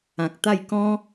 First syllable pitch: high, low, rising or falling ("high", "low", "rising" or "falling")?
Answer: low